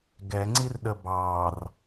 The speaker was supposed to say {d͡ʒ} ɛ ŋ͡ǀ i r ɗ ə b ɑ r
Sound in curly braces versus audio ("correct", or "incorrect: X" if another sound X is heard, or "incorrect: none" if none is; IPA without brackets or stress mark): incorrect: ɡ